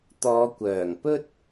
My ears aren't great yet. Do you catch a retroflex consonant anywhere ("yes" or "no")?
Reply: no